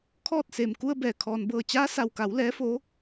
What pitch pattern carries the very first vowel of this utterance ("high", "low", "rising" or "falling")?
falling